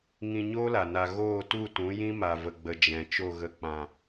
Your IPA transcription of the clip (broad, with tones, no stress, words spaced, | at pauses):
ŋĩ˧ ɲoː˦la˨ na˨ ɣoː˦˨tu˦˨tũ˨˦jĩ˦ ma˨və˨ɡ͡bə˨ d͡ʒɛ̃˨ t͡ʃo˦˨ɣə˧k͡pã˨